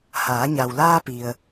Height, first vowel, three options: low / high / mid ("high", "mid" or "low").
low